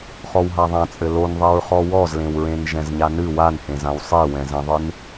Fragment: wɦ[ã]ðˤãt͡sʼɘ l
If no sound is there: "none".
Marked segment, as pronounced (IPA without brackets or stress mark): a